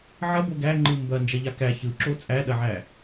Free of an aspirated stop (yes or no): yes